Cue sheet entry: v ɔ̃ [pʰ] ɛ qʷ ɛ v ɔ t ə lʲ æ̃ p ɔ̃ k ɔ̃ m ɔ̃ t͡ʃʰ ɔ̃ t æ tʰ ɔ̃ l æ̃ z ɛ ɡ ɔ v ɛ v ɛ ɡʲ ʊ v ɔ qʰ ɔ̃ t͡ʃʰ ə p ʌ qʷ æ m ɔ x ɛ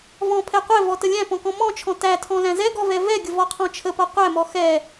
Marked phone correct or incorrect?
correct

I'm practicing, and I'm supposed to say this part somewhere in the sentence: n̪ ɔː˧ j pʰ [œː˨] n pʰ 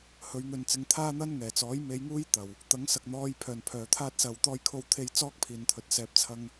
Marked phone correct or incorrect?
correct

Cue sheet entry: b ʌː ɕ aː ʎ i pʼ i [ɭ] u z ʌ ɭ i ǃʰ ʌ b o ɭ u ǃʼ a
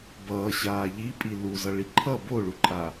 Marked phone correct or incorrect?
incorrect: l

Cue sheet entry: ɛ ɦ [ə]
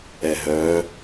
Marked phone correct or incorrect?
incorrect: œ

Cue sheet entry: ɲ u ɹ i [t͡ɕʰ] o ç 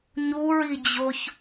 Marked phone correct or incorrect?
incorrect: d͡ʑ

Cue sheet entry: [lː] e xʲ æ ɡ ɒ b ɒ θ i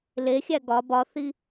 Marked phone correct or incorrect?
incorrect: l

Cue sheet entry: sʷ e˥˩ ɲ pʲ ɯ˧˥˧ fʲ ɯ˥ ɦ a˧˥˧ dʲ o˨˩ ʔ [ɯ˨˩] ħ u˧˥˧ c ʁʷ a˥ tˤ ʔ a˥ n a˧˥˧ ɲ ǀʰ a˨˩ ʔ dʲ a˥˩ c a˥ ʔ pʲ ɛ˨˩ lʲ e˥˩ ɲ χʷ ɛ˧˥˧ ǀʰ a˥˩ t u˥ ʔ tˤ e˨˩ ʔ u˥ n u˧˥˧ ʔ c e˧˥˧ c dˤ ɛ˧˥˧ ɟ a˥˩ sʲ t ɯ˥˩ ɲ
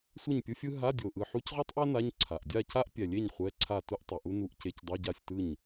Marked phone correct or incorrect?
correct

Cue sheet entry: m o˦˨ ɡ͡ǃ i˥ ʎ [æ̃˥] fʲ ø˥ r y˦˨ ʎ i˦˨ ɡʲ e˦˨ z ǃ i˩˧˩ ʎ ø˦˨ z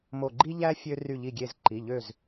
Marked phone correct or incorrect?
incorrect: æ˥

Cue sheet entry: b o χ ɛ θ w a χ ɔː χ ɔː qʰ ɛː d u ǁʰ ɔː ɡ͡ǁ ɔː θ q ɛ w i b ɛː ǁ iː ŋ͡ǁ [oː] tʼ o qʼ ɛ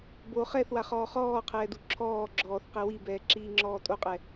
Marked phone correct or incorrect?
incorrect: ɔː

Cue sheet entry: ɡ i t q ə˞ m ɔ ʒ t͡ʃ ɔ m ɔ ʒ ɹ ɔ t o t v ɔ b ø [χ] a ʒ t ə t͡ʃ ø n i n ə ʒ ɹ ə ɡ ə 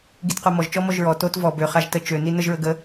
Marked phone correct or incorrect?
correct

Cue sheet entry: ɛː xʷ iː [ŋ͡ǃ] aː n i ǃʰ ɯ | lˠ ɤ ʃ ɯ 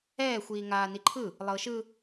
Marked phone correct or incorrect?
incorrect: ŋ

